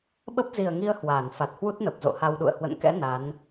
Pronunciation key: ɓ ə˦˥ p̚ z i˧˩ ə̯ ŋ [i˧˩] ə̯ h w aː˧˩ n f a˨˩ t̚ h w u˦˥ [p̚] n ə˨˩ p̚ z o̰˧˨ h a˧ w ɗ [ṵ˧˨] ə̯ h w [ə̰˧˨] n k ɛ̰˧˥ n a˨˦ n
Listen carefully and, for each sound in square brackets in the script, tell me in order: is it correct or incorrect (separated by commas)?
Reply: incorrect, incorrect, correct, correct